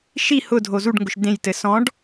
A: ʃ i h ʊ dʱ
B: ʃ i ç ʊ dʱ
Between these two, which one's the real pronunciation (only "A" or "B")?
A